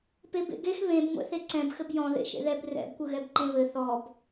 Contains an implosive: no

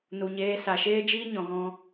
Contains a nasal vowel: yes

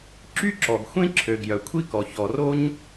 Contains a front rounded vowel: yes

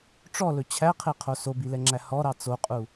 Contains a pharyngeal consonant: no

